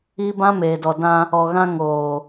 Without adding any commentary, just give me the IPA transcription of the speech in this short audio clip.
i˦ b ã˦ m eː˨ d ɔ˨ d ã˦ | ɔ˨ ɣ ã˦ ŋ oː˨

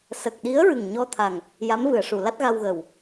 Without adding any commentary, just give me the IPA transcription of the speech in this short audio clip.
s ə˨˩ k̚ ɗ i˧˥ ə̯ ɹ ɨ˨˩ ŋ ɲ ɔ˧ t̪ʰ a˨˩ ŋ | j a˧˥ m v ɨ˨˩˨ ə̯ ʂ u˨˩˨ l a˦˥ t̚ ɣ a˧ w ɣ əː˨˩ w

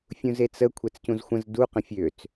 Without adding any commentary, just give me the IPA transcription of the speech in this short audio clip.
fʲ ũ z e t͡s ə kʷʰ ɛ t͡s c ũ z xʷ ə̃ z d u q ə̃ fʲ ø t͡s

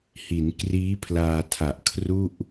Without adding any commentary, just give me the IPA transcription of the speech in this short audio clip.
h i˩˦ n k r iː˦˥ pʰ l aː˧ tʰ a˨˩ ʔ kʰ r u˥˩ ʔ

